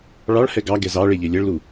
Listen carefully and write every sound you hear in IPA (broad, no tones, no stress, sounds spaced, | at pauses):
ɭ ɑ ɭ h ɛ ɡ ɑ ɡ ɛ z ɑ ɭ e ʎ e lʲ ɛ ɭ l u